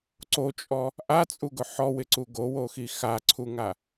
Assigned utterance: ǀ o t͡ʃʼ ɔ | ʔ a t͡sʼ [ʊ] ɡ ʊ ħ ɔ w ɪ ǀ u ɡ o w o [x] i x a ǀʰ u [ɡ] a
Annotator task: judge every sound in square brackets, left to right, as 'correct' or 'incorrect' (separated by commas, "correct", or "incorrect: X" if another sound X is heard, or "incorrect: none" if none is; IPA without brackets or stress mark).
incorrect: u, correct, incorrect: ŋ